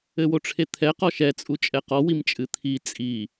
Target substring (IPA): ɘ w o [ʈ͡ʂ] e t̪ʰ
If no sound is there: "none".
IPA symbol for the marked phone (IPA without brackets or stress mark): ʈ͡ʂʰ